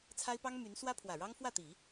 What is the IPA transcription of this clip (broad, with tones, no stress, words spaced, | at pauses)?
t͡sʰa˥ɪ̯pɑ˥ŋ my˧˥n swä˥pʰwä˨˩ɻɑ˥ŋ fwä˥˩t̪i˨˩˦